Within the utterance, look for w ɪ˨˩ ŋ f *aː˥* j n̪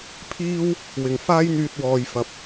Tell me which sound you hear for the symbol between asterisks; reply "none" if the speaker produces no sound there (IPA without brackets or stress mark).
aː˥